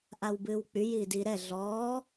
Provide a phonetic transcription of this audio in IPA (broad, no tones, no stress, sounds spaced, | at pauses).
ʔ a w b ɨː w k͡p y j iː d i ɾ ɛ ɮ ɔː